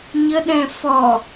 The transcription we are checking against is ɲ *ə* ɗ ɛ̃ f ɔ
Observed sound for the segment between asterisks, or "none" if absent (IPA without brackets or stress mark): ə